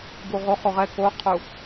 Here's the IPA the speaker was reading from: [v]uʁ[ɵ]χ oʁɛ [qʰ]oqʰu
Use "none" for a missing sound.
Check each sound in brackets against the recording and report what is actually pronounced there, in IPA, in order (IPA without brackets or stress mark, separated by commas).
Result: b, o, k